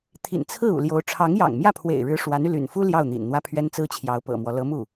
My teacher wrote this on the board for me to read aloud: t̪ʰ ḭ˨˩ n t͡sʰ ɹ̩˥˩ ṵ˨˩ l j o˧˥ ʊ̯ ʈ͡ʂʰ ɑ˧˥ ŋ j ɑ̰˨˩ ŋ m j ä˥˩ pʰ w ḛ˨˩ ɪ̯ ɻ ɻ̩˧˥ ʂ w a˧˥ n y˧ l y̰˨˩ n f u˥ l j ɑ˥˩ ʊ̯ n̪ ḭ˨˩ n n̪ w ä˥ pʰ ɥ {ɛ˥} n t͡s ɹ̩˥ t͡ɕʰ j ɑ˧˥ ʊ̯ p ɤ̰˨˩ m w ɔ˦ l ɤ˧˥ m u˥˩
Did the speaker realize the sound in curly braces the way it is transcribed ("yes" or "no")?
yes